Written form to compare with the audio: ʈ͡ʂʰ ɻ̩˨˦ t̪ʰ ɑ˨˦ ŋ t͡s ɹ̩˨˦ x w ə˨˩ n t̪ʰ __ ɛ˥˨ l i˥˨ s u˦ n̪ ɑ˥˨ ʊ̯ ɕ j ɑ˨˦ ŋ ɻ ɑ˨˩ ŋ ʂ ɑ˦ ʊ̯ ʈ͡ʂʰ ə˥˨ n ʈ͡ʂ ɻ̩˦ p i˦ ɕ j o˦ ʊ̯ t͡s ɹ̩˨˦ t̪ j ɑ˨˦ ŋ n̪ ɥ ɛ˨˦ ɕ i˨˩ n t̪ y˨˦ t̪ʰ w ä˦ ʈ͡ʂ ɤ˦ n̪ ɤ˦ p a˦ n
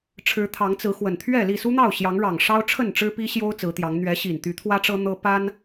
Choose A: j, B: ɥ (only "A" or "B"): B